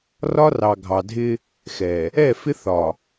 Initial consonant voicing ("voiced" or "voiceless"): voiced